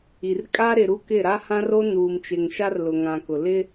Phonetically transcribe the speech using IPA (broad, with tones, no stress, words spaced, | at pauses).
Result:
i˨r kʼa˦ɾɪ˨ɾu˦ kɪ˦˨ɾa˦hã˦r o˦nuː˨mt͡ʃɪ˨ŋ ʃa˦rlʊ˨ŋã˨kʊ˨ lɪ˦